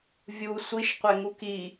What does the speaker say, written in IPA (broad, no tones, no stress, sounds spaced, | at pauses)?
vʲ u sʷ i ʃ qʷ e ŋ u k i